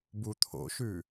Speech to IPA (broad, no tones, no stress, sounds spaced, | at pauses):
b u t̪ʰ o̰ ʃ ʉ